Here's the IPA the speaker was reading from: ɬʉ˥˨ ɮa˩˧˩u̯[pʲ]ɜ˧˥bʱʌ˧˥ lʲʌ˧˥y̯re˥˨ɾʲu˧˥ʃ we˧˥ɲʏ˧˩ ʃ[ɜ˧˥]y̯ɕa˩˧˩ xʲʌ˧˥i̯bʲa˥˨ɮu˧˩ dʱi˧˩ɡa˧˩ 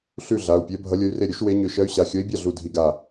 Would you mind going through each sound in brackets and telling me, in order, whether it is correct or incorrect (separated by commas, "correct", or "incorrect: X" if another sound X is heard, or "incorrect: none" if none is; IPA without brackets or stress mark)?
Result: correct, correct